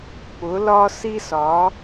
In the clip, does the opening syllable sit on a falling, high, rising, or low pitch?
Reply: rising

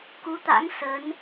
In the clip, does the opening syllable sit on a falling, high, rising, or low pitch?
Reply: rising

